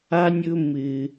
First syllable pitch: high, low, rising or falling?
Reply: low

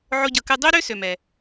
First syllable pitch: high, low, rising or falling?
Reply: high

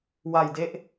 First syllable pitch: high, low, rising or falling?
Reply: low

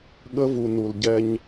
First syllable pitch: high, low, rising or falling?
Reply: high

